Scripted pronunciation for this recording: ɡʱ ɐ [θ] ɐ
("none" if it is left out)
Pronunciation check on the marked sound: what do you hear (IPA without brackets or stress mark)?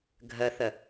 θ